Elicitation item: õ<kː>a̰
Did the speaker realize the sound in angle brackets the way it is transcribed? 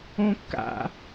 yes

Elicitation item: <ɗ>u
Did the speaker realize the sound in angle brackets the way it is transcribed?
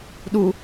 yes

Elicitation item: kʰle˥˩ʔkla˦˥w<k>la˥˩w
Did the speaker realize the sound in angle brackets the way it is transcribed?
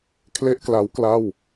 yes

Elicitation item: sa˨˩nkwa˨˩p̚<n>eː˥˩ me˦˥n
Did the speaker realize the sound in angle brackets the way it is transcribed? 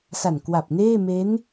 yes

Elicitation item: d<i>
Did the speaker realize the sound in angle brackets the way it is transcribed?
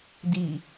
yes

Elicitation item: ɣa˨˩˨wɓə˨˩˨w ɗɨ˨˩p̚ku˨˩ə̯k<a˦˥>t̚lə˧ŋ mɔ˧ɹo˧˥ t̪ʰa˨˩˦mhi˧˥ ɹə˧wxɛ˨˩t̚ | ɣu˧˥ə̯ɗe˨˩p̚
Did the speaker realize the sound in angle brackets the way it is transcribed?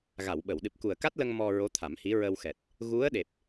yes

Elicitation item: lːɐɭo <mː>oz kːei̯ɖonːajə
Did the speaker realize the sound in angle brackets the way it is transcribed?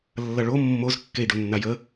yes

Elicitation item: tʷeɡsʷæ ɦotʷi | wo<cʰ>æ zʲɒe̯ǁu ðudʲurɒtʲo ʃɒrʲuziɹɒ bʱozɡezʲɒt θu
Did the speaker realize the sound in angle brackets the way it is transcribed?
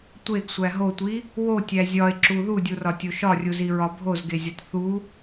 no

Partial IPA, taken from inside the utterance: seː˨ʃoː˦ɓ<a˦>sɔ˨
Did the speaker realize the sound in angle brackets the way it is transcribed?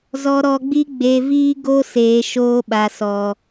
no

